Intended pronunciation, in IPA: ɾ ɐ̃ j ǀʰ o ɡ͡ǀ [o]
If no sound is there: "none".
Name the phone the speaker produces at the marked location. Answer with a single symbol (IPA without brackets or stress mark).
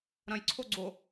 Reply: o